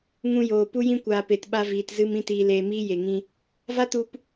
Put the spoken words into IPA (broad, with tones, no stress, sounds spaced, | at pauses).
ŋ ũ˧ j oː˨ p u˧ j ĩ˧ kʷ aː˨ p e˨ t ɓ a˧ v iː˨ t z ɨ˧ m ĩ˦ t iː˧ l eː˧ m iː˦ j e˨ ŋ ĩ˧ | v a˦ t u˧ p